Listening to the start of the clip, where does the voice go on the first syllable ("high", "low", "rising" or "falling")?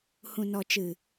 low